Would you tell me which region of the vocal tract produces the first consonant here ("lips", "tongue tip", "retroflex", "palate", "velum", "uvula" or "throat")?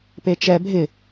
lips